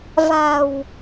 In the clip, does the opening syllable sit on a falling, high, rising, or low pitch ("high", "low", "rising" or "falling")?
low